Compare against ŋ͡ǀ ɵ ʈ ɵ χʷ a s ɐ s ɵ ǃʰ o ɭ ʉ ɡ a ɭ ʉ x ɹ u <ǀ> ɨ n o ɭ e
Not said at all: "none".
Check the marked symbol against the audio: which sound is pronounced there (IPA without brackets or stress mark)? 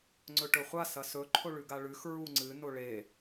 ŋ͡ǀ